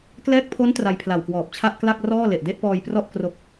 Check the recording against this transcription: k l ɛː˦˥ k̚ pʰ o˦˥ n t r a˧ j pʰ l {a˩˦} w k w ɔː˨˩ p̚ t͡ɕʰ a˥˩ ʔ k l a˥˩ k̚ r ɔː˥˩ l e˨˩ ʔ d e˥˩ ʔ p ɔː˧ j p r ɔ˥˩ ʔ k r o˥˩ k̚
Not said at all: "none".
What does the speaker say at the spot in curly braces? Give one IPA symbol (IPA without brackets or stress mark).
a˨˩